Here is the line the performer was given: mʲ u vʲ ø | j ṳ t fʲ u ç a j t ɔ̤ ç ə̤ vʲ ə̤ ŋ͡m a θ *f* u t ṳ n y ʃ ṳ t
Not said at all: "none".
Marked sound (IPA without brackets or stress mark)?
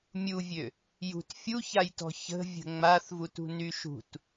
v